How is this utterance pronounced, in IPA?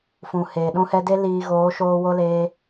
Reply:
f ũ˨ h eː˨ ɗ ũ˧ h ɛ˧ d e˦ l iː˧ ɣ oː˨˦ ʃ oː˧ w o˦ l eː˧

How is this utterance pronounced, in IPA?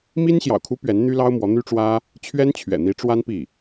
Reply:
m i˥ n ɕ j ɑ̰˨˩ ʊ̯ kʰ u˧˥ p ɥ ɛ˧˥ n n̪ y˥ l ɑ˥ ʊ̯ m w ɔ˧˥ n̪ y˥ ʈ͡ʂ w ä˥ | t͡ɕʰ ɥ ɛ˥ n t͡ɕʰ ɥ ɛ̰˨˩ n̪ i˧˥ ʈ͡ʂ w a˥ n p i˥˩

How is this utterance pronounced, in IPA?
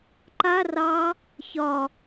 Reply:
ǃ a r ɑ | ç ɒ

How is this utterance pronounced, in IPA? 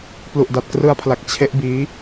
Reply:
p l u˨˩ ʔ d a˨˩ t̚ k r ɯ˦˥ a̯ pʰ l a˨˩ k̚ t͡ɕʰ e˦˥ ʔ b iː˦˥

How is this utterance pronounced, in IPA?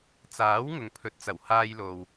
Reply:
t͡s aː˨˥ w ŋ ʊ˨ ŋ pʰ ɵ˨˥ t̚ t͡s ɐ˨˩ w h aː˧ j l o˨ w

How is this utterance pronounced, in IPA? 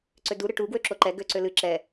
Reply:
ǀ ø d u ɾ ɨ ʈ u ɡ w ø ǁ o ǃ ɛ ɡ ø ǀ ø l ɨ ǁ ɛ

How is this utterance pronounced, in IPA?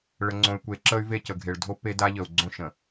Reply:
ɭ ə˨ ŋ͡ǀ õ˨ y̯ kʷ e˨˦ ǁ ə˦ y̯ v e˦˨ c ə˨ ɡʱ e˨ ɭ dʱ o˦ p e˦ d a˦ ʎ ə˨ u̯ ɡ͡ǀ õ˦ ʃ ə̃˨

